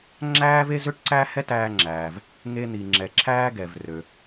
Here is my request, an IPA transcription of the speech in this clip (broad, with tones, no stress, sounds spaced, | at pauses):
ŋ͡ǁ æː˥ v e˥ z ø˥ ʈ ǀ æ˥ h ɛ˥ t æː˧ ŋ͡ǁ æː˩ v | ŋ e˧ n̪ i˩ ŋ͡ǁ ɛ˩ ǁʰ æː˥ ɡ ɛ˩ v r ø˩